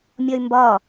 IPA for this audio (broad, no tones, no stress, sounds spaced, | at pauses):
mʲ ɒ y̯ m b ɒ